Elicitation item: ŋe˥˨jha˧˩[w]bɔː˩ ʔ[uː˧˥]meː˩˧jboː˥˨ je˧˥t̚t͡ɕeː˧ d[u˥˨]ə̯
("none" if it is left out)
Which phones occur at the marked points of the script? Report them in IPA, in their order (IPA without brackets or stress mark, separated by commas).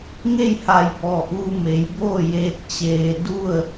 j, uː˧, u˥˨